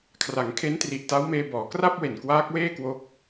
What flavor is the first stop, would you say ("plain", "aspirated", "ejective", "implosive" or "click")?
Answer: aspirated